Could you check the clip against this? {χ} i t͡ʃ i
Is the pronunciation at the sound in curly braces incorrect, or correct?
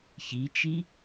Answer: incorrect